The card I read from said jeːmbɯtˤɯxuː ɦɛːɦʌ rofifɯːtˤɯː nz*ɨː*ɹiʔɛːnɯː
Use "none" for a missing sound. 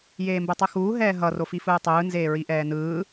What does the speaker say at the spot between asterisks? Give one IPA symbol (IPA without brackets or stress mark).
eː